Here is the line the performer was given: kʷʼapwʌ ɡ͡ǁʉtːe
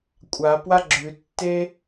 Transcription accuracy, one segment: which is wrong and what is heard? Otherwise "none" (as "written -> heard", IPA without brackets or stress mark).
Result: ʌ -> a